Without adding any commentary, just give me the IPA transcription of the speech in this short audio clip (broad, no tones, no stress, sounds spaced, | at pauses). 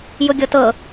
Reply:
j ʊ ɡʲ ɤ t ɤ